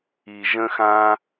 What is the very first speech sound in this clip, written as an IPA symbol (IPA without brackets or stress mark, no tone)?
i